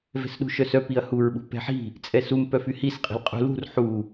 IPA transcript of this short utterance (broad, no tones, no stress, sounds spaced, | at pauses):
v ɛ̤ s ɗ ṳ ʃ œ s œ p i ɐ̯ h u ɹ ɓ ṳ p ɛ̤ ħ i̤ | t͡sʼ ɛ s u m p œ f y h i s qʼ i̤ l qʼ ṳ l ṳ r ħ u